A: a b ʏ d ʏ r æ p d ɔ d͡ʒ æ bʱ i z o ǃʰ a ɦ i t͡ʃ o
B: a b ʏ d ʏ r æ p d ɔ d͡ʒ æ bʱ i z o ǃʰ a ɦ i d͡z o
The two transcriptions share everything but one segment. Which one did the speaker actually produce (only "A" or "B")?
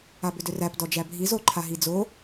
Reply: B